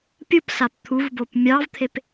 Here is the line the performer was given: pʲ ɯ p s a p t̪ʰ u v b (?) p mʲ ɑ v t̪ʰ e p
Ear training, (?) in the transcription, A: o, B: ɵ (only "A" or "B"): A